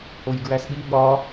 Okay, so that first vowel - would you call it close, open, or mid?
mid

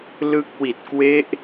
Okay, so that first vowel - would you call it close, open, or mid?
close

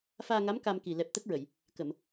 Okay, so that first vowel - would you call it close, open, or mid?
open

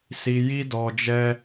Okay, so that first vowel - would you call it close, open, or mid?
close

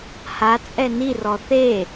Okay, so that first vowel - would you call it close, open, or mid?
open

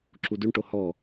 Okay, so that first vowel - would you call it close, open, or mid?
close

